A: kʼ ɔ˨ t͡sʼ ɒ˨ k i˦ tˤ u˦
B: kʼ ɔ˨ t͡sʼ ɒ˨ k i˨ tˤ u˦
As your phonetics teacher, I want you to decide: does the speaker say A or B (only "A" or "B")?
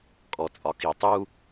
B